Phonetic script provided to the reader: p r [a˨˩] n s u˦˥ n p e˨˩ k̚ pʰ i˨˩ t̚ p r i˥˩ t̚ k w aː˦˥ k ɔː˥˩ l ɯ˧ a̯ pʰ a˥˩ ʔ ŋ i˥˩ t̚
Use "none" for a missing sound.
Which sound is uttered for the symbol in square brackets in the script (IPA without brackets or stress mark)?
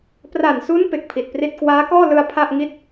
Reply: a˨˩